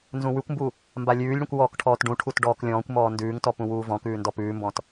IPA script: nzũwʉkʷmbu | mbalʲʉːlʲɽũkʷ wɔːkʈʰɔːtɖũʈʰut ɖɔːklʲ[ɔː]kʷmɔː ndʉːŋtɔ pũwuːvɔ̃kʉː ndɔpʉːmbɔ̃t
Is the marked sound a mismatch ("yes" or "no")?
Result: yes